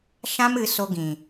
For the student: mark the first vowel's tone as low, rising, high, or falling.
high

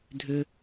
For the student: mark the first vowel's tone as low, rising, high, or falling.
low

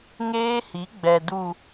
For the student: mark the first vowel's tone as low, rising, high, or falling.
high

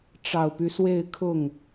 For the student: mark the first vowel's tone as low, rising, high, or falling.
low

